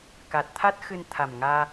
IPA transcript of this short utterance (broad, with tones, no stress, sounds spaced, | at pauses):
k a˨˩ t̚ t̪ʰ a˦˥ t̚ x ɨ˧ n t̪ʰ a˨˩ m ŋ aː˧